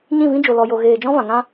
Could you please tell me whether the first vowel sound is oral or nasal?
nasal